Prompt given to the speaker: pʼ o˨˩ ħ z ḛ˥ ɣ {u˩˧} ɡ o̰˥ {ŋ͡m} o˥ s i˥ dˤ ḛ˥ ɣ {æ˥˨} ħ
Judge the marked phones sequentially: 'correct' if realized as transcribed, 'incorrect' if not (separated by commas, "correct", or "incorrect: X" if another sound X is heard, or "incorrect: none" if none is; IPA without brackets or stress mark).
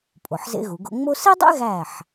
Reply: correct, correct, correct